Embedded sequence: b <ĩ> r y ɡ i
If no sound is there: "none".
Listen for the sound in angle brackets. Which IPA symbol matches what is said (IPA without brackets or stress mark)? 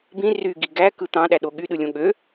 ĩ